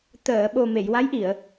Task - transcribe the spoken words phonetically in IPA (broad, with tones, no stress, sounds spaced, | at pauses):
t̪ əː˨˩˨ ɓ o˨˩ m e˨˩˨ j w a˧˥ j ʔ i˨˩˨ ə̯